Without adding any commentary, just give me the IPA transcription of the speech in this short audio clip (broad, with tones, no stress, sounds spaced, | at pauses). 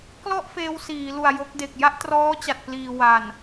k l ɔ˥˩ ʔ f eː˧ w s iː˩˦ l u˨˩ a̯ j o˦˥ k̚ d e˨˩ k̚ j a˥˩ ʔ t r ɔː˦˥ t͡ɕ a˨˩ t̚ p l iː˨˩ w a˨˩ n